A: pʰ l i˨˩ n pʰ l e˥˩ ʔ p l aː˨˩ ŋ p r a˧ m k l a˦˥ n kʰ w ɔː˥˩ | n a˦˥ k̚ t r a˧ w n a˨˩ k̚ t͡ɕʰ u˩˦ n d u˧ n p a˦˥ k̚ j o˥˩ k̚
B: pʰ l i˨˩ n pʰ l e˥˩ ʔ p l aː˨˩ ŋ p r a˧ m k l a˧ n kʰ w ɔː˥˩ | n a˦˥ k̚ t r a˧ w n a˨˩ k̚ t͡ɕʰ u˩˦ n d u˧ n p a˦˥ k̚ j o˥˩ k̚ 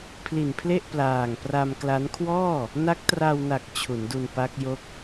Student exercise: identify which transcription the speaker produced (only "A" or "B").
A